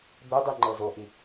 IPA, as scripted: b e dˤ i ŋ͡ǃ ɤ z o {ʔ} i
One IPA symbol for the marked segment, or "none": ʔ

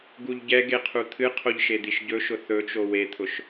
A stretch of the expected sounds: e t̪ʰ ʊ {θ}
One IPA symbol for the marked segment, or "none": ʃ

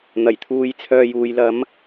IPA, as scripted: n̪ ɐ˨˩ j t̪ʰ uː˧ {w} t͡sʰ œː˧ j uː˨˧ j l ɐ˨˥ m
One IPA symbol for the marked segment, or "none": j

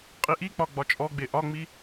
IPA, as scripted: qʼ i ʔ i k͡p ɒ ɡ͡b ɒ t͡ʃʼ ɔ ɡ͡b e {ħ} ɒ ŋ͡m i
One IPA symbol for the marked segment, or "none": ʔ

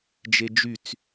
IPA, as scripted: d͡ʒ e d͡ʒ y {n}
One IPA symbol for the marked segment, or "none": t͡s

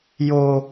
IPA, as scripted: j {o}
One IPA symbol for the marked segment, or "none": o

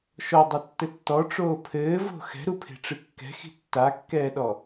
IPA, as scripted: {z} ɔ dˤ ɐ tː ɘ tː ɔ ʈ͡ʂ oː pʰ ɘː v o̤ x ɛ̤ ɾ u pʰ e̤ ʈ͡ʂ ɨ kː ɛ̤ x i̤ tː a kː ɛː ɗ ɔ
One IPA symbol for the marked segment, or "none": ʃ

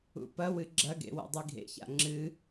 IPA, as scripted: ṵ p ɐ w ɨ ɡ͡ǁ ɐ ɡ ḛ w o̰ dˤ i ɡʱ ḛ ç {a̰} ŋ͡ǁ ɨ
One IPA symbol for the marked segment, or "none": a̰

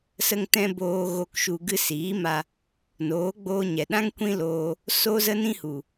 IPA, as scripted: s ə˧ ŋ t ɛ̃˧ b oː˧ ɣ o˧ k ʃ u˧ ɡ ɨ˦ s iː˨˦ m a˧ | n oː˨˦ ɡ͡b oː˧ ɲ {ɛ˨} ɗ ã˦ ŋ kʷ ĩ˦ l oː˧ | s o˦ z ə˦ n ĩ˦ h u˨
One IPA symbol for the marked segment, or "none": ɛ˨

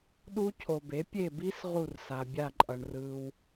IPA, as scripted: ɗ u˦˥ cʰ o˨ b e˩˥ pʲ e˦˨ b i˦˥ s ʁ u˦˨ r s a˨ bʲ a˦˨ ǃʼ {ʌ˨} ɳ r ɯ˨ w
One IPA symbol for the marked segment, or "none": ʌ˨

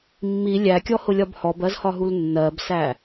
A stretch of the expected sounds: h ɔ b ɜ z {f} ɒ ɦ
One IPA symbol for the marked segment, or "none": h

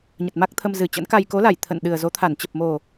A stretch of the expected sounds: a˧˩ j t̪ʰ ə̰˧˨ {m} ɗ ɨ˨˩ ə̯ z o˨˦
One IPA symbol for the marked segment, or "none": n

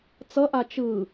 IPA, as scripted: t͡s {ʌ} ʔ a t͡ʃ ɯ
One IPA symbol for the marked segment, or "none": ʌ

